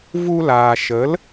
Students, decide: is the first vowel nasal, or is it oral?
oral